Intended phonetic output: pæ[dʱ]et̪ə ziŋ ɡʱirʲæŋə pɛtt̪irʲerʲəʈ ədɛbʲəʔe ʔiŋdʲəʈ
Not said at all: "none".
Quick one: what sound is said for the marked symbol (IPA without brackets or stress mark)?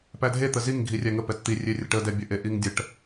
dʱ